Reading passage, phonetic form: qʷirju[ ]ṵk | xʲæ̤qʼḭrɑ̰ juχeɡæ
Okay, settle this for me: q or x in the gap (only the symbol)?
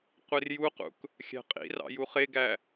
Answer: q